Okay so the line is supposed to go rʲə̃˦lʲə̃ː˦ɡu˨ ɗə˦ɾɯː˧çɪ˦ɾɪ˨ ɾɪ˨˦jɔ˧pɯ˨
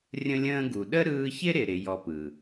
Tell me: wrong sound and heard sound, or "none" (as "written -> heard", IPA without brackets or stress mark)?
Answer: none